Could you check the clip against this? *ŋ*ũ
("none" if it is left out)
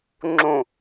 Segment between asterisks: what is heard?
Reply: ŋ͡ǁ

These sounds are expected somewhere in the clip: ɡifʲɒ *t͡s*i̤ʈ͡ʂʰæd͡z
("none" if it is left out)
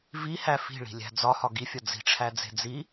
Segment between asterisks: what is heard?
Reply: d͡z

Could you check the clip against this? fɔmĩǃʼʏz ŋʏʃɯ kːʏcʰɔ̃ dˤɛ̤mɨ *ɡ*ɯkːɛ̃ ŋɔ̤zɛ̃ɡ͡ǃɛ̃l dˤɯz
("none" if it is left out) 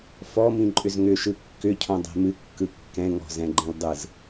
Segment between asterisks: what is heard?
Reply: kː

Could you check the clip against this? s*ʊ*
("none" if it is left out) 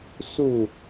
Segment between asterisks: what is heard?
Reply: u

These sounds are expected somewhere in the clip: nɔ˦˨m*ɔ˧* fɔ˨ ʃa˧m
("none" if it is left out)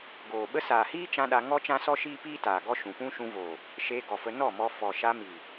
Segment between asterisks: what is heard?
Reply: ɔ˧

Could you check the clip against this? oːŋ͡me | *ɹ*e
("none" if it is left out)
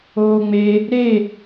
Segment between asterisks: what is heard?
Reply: ɾ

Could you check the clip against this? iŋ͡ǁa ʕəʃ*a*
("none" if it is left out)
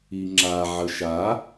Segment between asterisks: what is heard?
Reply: a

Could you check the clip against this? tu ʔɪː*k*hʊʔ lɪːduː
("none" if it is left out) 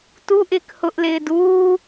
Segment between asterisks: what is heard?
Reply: k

